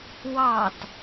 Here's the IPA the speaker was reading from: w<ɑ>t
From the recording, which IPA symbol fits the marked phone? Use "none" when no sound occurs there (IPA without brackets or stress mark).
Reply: ɑ